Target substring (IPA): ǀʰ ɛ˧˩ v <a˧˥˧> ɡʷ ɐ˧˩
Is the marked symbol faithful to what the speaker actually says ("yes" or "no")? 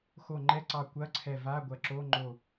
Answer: yes